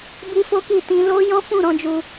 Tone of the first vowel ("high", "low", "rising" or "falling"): high